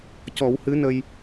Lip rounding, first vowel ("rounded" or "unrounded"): rounded